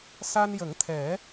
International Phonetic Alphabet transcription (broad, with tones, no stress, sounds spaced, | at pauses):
s a˧ n j ə˨˩˦ ŋ t̪ʰ ɛ˨˩˦